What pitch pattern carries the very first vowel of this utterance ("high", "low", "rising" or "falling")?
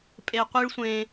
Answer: low